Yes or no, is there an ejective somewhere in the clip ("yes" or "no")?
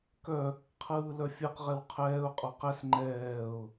yes